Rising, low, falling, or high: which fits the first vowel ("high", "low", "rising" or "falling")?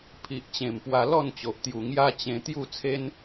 low